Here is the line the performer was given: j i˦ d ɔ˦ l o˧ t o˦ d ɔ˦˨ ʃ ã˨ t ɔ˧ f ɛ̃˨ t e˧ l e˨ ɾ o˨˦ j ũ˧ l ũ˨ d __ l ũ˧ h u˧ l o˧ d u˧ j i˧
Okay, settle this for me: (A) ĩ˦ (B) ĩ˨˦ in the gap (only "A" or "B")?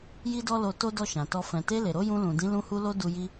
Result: B